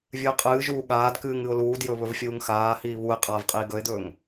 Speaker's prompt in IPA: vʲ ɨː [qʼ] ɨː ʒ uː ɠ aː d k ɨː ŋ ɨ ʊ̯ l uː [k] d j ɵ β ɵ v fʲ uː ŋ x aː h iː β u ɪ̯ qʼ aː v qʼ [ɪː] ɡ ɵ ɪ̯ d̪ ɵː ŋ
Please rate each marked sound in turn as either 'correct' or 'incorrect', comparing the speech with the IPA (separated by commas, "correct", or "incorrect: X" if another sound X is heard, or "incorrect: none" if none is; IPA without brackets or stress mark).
correct, incorrect: none, incorrect: iː